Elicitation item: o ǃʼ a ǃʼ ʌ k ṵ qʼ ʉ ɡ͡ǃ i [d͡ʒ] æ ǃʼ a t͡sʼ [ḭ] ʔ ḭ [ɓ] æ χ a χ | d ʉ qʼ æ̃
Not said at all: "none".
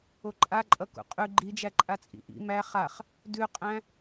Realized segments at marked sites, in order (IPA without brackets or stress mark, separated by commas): d͡ʒ, ḭ, m